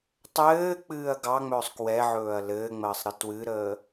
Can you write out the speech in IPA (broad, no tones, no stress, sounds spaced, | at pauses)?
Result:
tˤ ɘː k͡p ɨː ɐ̯ ɡ ɑ ŋ͡m ɵː sˤ k w ɛ ʕ ɵː ɐ̯ l ɘː ŋ͡m əː sˤ ɾ ɨ t w ɨ ɾ əː